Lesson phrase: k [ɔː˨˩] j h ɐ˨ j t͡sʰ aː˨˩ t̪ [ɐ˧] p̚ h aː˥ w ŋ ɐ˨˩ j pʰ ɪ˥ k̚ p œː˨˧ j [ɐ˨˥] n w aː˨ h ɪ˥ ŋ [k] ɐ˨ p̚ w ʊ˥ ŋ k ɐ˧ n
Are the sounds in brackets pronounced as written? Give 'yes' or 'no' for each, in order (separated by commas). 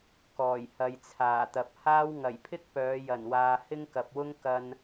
yes, no, no, yes